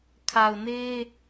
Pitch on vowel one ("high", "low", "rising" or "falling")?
low